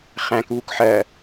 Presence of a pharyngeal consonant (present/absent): present